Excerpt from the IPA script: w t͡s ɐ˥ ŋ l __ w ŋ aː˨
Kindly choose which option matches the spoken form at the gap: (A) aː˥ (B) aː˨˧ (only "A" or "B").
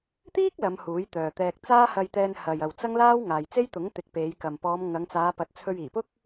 A